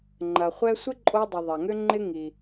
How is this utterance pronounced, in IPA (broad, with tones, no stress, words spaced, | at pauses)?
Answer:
ŋ͡ǃɐ˩χʷɛ˥ sʷɪ˥ǃʼo˧dˤɪ˩ ðˤɐ˩ŋʏ˥ ŋ͡ǃɪ˥ ŋi˩